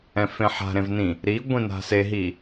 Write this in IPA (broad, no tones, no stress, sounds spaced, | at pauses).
ɛ̃ f ẽ ħ a̤ ɾ ẽ v n ĩ | ɾ i ɡʷ ĩ n a̤ s e ɦ i